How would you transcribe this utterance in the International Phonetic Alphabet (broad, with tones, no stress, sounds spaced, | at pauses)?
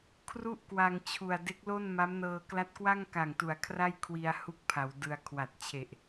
kʰ r u˥˩ ʔ k w a˧ ŋ t͡ɕʰ u˨˩ a̯ d e˦˥ k̚ l o˥˩ n m a˦˥ m n ɤː˧ k l a˦˥ t̚ k w a˥˩ ŋ k a˨˩ ŋ t u˩˦ a̯ kʰ r a˥˩ j kʰ w i˧ a̯ h u˥˩ k̚ pʰ a˩˦ w d ɯ˧ a̯ kʰ w a˨˩ t̚ t͡ɕʰ e˨˩ ʔ